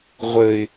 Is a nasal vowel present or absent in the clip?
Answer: absent